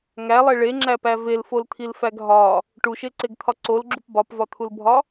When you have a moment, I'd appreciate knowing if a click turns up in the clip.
yes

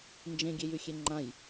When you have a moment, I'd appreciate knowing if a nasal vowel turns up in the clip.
yes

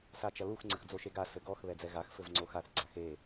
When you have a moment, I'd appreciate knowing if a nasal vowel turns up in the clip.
no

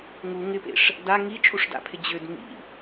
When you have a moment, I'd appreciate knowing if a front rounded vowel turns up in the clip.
yes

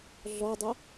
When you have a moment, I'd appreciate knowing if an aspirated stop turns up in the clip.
no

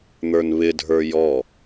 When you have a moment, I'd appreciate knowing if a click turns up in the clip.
no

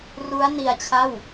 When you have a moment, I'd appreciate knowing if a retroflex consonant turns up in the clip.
no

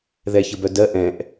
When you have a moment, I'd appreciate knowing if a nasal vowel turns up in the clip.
yes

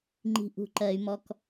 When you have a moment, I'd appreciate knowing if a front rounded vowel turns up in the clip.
yes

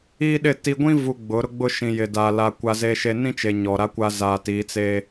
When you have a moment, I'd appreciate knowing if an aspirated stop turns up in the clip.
no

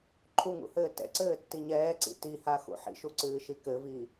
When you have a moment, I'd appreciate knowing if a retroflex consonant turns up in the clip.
no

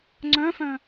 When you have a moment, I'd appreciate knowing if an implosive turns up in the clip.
no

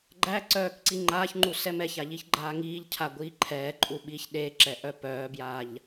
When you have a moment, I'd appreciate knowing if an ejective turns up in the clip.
yes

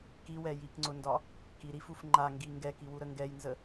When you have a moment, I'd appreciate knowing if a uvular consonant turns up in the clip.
no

